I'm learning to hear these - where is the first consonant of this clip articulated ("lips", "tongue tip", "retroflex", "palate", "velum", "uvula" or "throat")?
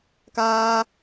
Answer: velum